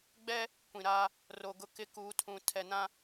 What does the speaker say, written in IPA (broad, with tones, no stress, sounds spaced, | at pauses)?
ɡ͡b ɛ˦ | kʷ ĩ˨ ɾ aː˦ | r o˨ ɡ ʊ˦ k ɪ˦ k uː˨˦ tʰ ũ˨ tʰ ɛ˨ n ã˦